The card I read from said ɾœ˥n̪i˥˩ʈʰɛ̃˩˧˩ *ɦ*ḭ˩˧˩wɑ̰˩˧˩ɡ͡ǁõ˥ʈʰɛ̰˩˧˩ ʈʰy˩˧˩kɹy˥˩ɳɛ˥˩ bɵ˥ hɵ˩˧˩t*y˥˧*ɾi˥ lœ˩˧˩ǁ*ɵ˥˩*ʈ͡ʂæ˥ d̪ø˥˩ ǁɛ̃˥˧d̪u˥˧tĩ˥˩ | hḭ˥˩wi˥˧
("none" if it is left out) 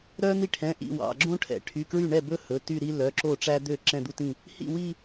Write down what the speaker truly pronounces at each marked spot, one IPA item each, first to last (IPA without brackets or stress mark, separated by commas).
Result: ʔ, y˥˧, o˥˩